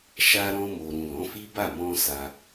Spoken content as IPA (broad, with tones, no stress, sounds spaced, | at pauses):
ʃ a˧ ɾ ɔ̃˧ m o˨ ɾ ũ˨ l ɔ̃˨˦ f i˦ b a˦˨ m ɔ̃˧ s a˧